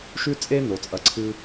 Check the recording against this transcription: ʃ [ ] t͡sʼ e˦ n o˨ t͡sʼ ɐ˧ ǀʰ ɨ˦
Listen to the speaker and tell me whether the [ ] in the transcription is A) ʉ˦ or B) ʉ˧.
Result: A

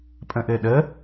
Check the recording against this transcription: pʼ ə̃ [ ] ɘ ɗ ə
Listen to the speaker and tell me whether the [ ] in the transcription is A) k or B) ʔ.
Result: B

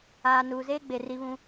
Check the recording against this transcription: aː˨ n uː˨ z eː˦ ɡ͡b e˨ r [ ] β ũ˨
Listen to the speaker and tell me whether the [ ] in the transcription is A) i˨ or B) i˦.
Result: A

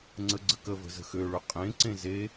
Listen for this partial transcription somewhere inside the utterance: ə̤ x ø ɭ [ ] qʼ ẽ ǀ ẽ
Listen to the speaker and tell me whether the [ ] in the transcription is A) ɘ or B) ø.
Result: B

